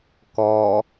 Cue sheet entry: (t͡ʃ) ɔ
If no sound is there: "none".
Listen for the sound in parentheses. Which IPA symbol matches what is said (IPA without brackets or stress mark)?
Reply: k